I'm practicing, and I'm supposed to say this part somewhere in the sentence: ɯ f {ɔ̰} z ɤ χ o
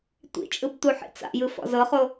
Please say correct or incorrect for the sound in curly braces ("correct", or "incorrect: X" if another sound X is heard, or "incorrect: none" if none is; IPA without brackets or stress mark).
correct